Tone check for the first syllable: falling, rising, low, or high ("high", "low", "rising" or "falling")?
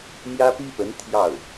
high